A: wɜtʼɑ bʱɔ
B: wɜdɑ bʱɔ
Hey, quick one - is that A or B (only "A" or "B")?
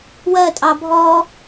A